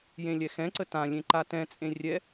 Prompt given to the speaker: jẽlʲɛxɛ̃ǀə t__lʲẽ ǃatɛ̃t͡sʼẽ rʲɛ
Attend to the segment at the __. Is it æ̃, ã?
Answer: ã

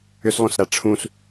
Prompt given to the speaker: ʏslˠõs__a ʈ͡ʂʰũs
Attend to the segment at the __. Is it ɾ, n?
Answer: ɾ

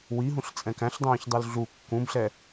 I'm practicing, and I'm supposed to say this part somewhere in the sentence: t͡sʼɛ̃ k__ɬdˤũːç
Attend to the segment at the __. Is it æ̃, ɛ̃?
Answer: æ̃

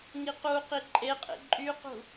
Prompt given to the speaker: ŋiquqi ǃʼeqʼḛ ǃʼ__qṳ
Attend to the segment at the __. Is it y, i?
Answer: y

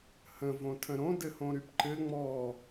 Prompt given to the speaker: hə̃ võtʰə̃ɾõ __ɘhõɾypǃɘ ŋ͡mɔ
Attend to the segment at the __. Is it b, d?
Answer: d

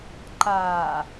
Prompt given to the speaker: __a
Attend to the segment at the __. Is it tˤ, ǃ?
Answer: ǃ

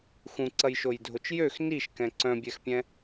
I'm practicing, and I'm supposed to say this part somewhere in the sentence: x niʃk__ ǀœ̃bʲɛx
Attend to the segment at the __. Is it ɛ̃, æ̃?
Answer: ɛ̃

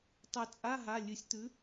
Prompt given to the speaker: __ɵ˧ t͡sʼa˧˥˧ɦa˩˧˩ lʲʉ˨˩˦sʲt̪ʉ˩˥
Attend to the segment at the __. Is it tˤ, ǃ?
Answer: tˤ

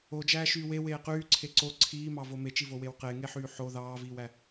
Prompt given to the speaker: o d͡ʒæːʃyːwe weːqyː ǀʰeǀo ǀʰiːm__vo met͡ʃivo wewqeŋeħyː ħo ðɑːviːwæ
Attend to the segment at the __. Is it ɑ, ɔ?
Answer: ɑ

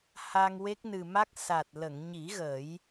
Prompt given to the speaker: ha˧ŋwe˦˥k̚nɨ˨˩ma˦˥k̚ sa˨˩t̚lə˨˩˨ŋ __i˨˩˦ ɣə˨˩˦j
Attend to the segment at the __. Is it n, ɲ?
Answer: ɲ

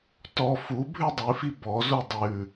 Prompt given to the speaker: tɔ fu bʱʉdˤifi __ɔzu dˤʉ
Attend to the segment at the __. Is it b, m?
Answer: b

